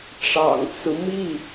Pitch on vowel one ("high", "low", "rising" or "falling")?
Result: low